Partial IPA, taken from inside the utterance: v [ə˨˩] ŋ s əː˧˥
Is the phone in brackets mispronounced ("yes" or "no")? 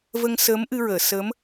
yes